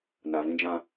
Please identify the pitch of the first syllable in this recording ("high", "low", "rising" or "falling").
low